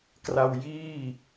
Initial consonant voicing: voiceless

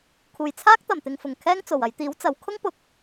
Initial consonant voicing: voiceless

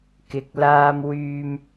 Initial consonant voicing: voiceless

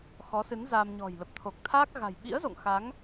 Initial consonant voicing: voiceless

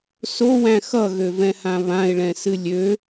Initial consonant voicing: voiceless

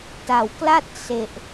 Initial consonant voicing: voiceless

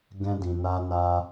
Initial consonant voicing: voiced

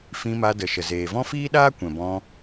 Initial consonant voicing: voiceless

